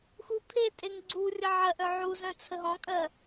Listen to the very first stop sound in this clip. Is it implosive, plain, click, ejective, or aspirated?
aspirated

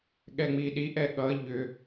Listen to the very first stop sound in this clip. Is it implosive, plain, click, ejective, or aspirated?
implosive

